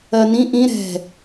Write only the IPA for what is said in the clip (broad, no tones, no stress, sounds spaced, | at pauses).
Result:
ɜ n ĩ ʔ ĩ ɾ ɛ̤